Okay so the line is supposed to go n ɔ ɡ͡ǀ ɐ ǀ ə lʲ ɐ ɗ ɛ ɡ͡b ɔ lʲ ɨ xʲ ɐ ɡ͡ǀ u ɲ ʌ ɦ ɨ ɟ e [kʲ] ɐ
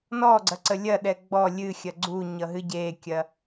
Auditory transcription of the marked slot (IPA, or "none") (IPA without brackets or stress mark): kʲ